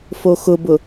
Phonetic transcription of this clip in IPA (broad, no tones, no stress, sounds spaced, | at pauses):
f o x ʊ b ʊ